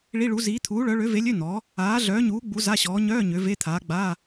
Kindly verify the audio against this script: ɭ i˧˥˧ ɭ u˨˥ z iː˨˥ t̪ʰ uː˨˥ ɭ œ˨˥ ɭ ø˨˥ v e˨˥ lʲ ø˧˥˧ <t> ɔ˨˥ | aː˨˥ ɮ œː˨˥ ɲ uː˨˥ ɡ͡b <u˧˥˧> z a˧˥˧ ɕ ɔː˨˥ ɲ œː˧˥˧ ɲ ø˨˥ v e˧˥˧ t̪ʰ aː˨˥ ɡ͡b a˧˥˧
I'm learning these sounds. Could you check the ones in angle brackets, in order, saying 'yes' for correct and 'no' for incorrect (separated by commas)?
no, no